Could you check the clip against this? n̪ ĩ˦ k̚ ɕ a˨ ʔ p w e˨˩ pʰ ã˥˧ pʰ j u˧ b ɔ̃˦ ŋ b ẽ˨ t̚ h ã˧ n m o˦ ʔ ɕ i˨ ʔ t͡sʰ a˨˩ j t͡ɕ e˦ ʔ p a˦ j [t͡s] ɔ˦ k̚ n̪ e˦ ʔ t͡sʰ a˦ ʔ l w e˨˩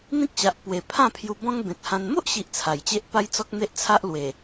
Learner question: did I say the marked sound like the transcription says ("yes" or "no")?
yes